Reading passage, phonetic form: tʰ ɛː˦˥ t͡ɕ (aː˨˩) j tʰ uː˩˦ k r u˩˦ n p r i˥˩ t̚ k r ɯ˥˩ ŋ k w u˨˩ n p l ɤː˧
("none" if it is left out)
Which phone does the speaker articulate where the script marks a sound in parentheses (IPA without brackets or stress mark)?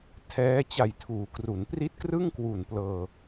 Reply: a˨˩